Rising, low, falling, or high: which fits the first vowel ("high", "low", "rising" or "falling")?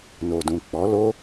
low